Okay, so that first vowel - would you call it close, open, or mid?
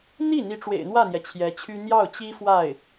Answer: close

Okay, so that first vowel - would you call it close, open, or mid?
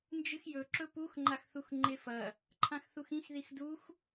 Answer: close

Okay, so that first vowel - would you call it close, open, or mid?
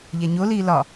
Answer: open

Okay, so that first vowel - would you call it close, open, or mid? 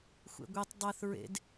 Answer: mid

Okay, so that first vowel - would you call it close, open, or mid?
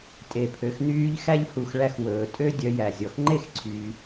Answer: mid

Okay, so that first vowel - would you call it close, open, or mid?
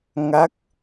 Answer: open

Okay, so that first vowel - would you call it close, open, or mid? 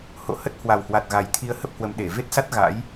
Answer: mid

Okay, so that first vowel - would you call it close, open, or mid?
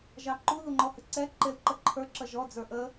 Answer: open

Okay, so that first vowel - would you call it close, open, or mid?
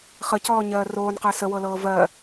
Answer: mid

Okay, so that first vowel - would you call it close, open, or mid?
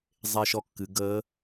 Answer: mid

